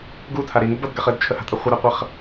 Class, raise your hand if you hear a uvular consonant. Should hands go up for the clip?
yes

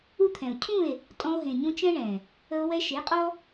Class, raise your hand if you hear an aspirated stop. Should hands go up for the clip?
yes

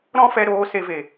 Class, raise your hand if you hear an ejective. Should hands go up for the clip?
no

